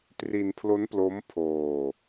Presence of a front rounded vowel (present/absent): absent